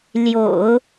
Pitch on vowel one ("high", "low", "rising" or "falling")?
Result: low